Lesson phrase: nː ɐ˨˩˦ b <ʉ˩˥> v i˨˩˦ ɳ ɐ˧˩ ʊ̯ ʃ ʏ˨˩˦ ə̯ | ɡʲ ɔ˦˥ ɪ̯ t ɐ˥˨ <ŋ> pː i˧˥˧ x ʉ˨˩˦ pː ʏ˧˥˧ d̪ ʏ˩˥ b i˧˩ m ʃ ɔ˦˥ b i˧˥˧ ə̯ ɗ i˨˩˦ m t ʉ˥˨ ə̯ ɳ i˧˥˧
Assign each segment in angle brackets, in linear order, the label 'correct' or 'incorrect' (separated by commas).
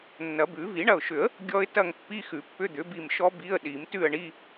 incorrect, correct